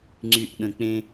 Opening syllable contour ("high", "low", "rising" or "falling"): low